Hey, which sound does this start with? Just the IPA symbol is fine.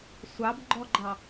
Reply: sʷ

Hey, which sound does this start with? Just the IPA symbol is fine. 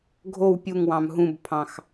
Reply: ɡʱ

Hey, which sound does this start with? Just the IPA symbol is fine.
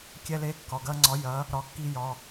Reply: kʲ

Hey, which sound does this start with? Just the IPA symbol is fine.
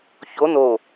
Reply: ç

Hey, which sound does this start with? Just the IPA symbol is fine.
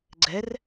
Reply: ɡ͡ǀ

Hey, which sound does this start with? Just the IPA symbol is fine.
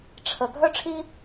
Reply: ʈ͡ʂʰ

